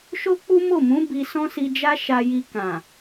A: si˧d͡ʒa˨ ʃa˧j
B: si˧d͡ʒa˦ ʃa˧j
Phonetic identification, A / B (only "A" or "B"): B